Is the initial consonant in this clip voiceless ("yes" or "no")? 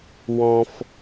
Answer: no